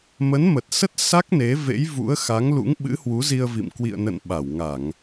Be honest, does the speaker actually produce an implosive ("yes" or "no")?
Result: yes